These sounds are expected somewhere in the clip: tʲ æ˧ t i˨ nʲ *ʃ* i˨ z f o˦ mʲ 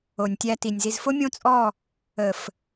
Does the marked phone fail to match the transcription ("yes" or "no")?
yes